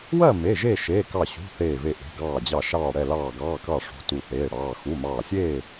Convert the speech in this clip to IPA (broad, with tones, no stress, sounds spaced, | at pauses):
w ɜ˥˨ m e˩˧˩ ʒ e˥˨ ʃ eː˩˧˩ k ɑ˧˩ ɕ ṳ˩˧˩ θ eː˧˩ v e˧˩ ʔ e̤˩˧˩ ɡ ɑː˧˩ d͡ʑ ɑ˧˩ ʃ ɑː˧˩ ɽ ɛ˧˩ l ɑː˧˩ ɡ ɑː˩˧˩ k ɑ˧˩ ʂ ṳ˩˧˩ t u˧˩ θ eː˩˧˩ ɽ ɑː˩˧˩ x u˩˧˩ m ɑː˧˩ sʲ eː˥˨